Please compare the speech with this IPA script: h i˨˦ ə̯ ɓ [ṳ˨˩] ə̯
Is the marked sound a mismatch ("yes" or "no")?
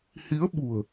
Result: no